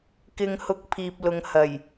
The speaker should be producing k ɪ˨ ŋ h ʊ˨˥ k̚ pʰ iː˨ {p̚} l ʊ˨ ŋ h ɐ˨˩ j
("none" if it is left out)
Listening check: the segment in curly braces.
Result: p̚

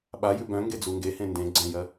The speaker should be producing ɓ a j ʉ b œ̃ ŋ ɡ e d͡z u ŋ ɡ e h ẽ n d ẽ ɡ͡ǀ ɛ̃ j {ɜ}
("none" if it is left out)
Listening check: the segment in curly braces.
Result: ɜ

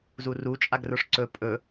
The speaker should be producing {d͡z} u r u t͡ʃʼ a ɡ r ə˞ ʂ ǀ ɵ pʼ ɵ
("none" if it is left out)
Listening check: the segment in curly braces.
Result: z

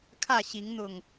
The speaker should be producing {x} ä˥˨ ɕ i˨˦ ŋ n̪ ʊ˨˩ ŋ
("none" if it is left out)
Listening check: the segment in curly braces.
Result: kʰ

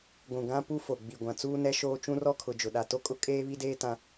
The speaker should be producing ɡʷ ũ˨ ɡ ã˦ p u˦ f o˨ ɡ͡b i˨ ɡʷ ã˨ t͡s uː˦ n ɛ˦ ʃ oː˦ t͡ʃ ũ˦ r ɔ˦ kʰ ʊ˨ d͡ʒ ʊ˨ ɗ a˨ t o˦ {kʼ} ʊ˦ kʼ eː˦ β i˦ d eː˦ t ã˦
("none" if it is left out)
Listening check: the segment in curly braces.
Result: kʼ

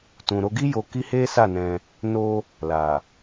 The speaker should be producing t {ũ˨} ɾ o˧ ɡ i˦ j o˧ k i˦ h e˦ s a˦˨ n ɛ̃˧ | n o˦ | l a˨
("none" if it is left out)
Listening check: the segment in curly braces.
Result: ũ˨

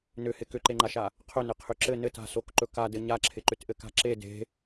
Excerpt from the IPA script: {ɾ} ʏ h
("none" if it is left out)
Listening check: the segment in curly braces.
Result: n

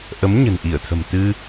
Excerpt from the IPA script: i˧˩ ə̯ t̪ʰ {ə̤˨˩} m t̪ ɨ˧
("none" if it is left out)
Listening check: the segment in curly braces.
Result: ə̤˨˩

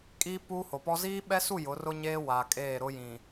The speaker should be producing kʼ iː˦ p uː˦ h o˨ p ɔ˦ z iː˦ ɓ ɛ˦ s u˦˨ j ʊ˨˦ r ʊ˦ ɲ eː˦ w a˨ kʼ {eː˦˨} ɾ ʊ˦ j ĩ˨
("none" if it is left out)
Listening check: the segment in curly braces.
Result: eː˦˨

